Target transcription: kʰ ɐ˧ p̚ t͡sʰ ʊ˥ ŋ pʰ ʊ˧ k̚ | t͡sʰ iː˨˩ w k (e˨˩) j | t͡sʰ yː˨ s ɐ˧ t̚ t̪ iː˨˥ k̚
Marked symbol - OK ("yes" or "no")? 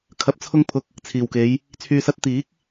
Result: no